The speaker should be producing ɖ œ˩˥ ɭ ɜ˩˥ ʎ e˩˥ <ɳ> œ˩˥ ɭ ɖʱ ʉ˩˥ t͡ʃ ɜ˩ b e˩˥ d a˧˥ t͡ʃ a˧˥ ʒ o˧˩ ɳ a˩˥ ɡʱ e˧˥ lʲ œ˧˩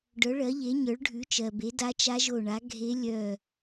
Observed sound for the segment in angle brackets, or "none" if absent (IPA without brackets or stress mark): ɲ